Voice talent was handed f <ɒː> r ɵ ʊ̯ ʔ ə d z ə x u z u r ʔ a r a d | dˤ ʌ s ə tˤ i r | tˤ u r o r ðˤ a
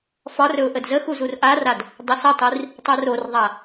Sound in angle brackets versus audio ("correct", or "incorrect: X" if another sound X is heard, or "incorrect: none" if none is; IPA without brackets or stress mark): incorrect: ɒ